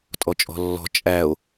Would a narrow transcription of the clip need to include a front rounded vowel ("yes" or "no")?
no